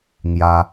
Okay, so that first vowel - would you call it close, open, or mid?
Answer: open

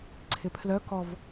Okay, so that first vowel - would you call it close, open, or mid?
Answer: close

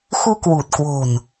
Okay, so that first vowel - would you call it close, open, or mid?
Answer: close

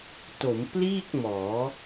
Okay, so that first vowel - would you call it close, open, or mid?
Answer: mid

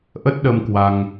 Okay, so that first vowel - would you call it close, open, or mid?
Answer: mid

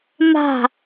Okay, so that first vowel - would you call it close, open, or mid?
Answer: open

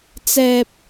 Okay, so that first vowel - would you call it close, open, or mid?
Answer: mid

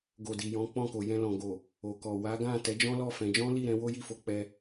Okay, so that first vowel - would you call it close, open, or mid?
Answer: mid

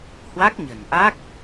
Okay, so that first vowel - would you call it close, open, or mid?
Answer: open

